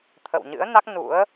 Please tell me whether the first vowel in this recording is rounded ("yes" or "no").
no